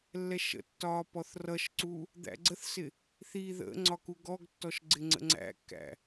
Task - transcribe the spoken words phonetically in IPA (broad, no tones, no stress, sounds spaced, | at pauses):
lː ɛ ʃ ə̰ tː ɒː p ɔ θ r ʌ ʃ ǀ u | d̪ æ̰ ɡ͡ǀ ə θ s ɪ | θ i ð ə̰ ŋ͡ǀ ɒ k u ɡ ɔ ɡ tː ɔ ʃ ɡ͡ǀ ɪ ŋ͡ǀ ə̰ ŋ͡ǀ æ̰ kː æ̰